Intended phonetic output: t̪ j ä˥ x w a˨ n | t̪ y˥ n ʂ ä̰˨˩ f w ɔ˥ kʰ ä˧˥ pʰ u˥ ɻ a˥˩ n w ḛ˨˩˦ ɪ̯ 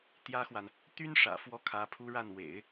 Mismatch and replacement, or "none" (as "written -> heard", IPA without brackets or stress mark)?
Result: none